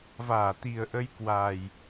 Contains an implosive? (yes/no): no